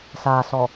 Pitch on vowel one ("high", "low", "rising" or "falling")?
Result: low